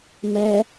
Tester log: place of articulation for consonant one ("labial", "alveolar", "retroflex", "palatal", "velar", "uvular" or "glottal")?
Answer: labial